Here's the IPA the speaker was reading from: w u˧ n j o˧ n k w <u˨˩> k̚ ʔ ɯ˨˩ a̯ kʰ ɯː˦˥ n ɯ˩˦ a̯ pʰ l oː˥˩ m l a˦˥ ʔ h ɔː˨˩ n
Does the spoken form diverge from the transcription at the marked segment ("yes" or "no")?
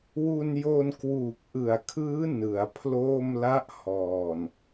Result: yes